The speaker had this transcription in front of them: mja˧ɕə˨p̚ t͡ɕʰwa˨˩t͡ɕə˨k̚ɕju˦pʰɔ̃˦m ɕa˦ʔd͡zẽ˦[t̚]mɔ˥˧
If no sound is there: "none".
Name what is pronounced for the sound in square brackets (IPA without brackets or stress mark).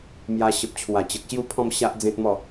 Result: t̚